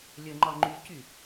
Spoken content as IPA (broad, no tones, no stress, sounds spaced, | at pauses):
lʲ ə ŋ͡ǃ ɒ ŋ͡ǃ y c y